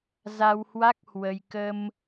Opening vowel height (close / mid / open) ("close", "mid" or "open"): open